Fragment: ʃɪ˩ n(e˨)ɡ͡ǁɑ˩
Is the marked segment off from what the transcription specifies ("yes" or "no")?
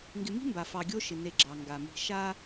no